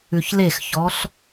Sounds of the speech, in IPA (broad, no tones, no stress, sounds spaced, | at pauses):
ʉ ç l e x ç ɔ ɬ